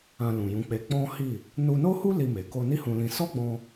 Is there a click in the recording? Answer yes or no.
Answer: no